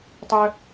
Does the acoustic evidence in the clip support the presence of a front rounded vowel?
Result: yes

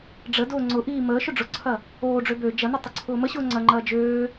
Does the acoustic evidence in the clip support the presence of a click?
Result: yes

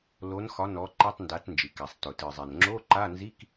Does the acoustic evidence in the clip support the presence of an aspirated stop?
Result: no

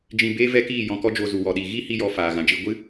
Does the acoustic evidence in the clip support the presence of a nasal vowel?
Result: yes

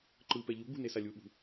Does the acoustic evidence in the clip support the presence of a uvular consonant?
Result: no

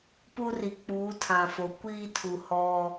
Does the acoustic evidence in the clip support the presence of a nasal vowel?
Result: yes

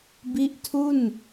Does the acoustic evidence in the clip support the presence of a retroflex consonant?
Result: no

